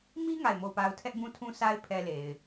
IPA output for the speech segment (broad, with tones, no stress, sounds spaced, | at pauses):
m i˦ ŋ a˦˨ ɪ̯ m o˦˨ ʊ̯ p a˦ ʊ̯ tʰ ɛ˦ ʔ b ũ˦ tʰ ũ˦ s a˦ ɪ̯ pʰ ɛ˦ l e˨ ɪ̯